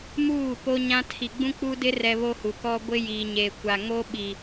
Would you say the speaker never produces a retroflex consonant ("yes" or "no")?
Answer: yes